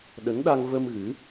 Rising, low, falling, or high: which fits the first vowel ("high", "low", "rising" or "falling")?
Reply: rising